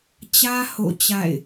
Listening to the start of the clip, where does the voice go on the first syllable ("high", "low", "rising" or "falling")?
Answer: high